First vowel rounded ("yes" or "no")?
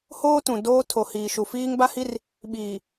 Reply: yes